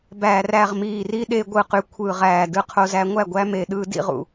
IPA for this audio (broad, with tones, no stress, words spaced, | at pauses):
bæː˨ ræ˨ʁmiː˨ri˧ ɗe˧ ɡʷɯ˨qy˨ kʷʰɯ˨ʁæː˨ dɯ˧qʰo˧zæ˧ ŋʷæ˦˨ɡʷæ˧ me˨ɗɯː˧dḭ˧ʁṵ˨